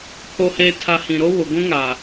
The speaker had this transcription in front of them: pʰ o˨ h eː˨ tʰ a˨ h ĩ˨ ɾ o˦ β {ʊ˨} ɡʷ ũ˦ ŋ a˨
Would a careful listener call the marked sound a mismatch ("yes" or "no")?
no